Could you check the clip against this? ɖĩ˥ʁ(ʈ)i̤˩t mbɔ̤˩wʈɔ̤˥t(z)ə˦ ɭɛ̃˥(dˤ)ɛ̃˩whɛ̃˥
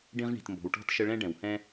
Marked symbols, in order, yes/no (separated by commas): no, no, no